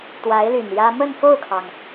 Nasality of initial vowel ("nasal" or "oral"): oral